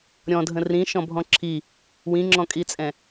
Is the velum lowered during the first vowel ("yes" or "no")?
yes